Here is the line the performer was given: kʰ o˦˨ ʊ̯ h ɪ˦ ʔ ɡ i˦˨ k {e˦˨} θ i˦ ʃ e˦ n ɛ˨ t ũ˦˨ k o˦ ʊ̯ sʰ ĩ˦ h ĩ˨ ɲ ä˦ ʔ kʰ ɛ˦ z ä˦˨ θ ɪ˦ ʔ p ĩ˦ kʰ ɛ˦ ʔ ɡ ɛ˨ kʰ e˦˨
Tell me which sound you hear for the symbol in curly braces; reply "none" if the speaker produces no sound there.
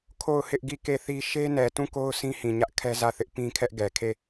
e˦˨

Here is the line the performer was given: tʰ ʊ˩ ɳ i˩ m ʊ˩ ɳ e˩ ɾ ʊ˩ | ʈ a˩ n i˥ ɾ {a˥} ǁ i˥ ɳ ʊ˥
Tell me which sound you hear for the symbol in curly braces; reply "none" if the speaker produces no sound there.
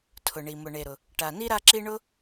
a˥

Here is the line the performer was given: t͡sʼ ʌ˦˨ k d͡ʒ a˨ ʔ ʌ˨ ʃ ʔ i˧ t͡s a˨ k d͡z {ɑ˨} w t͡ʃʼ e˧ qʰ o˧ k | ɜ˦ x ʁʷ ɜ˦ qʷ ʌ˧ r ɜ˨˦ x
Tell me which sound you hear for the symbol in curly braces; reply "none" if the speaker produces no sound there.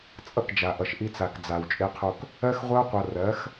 a˨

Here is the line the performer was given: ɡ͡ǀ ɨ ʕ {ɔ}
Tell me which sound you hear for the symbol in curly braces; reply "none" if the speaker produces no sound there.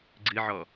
ɔ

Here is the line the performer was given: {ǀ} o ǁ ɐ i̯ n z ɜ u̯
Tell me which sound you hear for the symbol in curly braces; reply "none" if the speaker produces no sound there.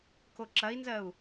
k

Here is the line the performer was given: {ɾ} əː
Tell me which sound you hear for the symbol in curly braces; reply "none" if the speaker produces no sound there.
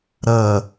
ɾ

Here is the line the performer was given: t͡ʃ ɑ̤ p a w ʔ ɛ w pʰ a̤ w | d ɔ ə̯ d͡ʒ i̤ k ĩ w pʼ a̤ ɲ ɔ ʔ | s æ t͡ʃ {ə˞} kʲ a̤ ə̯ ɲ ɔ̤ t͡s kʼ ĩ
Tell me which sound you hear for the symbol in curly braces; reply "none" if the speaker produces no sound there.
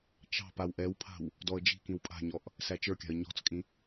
ə˞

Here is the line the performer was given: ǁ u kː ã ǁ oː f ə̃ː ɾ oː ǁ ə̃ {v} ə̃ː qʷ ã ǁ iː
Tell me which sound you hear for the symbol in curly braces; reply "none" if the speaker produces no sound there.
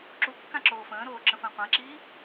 f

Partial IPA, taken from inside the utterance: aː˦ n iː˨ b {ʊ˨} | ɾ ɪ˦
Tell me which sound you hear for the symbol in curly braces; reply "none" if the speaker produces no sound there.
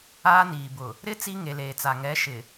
ʊ˨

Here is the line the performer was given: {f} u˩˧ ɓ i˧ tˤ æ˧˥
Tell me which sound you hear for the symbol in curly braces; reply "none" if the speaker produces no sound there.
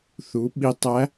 θ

